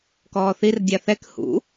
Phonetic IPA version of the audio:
k ɔː θ i r dʲ a θ ɛ k h ṵ

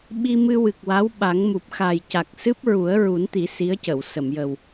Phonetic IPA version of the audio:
ɓ i˧ m ɨ˧ w ɨ˨˩ k̚ w a˧˥ w ɓ a˨˩˦ ŋ m u˨˩ p̚ x a˨˩ j c a˨˩ k̚ s ɨ˦˥ p̚ ɹ u˨˩˦ ə̯ ɹ u˨˩˦ n t̪ i˨˩˦ s i˧˥ ə̯ c ə˨˩˨ w s ə˨˩˨ m j ə˨˩ w

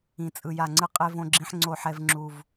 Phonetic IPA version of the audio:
ĩ˨ t͡sʼ ɯ˨ j a˨ ŋ͡ǀ ɯ˦ qʼ e˦ v õ˦ ɡ͡ǁ ĩ˦ ħ ŋ͡ǀ oː˦ ħ ɛ˦ v ŋ͡ǁ u˦ v

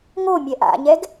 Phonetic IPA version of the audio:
ŋ o mʲ ɛ ʔ a̰ ɲ ɛ ɡ

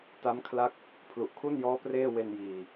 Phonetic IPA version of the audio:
t a˦˥ m kʰ l a˦˥ k̚ | pʰ l u˨˩ ʔ kʰ u˥˩ n j ɔː˦˥ p r eː˥˩ w e˧ n j iː˨˩

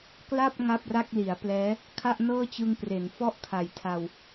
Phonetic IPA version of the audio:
k l a˥˩ p̚ ŋ a˥˩ p̚ r a˥˩ k̚ l i˩˦ a̯ p l ɛː˦˥ | kʰ a˥˩ ʔ n ɤː˥˩ t͡ɕ ɯ˧ ŋ p r e˩˦ n f ɔ˥˩ ʔ kʰ a˨˩ j tʰ a˧ w

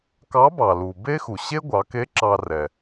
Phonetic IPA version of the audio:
k ɑ˧˥ b ɑ˩ l u˩ b e˥ x u˩ ɕ e˥ ɡʷ ɑ˩˧ k e˧˥ ǁ ɑ˧ r ɛ˩

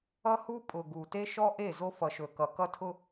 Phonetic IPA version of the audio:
ʌ˦ h u˦ pʼ ʊ˨ ɡ u˨ t e˦ ʃ ɔ˦ ʔ e˦˨ z o˦ f ʌ˨ ʃ ɵ˨ k ʌ˨ k ʌ˦ tʰ ʊ˦

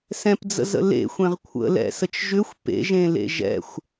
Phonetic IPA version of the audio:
s ɛ̃ p d͡z ə̰ z ə̰ l ḛ xʷ ẽ ʁ kʷʰ ə̰ l ɛ̰ s ə t͡ʃ ʒ ʏ xʷ p ḛ ʒ ẽ l ḛ ʒ ɛ̰ xʷ

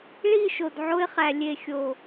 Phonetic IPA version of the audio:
ɭ i˦˨ ʃ o˨ d ʕ o˧ ɪ̯ χ æ˨ lʲ e˨ xʲ o˨

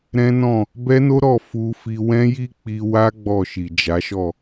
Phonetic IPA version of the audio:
ɾ ɛ̃˦ n ɔ̃˦˨ | b ɛ˦ n o˦ ɾ ɔ˦˨ f u˧ f i˧ w ɛ̃˦ j i˦ k͡p i˧ w a˦ ɡ͡b ɔ˦˨ ʃ i˨ d͡ʒ a˨˦ ʃ ɔ˦˨

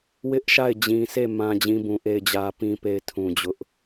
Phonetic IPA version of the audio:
w ɪ˦ ʔ ʃ a˦˨ ɪ̯ d͡ʑ ĩ˨ sʰ e˦˨ m ã˦ d͡ʑ ĩ˦ b ũ˨ ʔ e˦˨ ɪ̯ d͡ʑ ä˦ p ĩ˦ p e˦ ɪ̯ tʰ ũ˨ d͡ʑ ʊ˦ ʔ

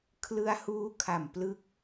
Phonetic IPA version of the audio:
kʰ l ɯ˧ a̯ h uː˦˥ kʰ a˨˩ m p l ɯ˦˥ k̚

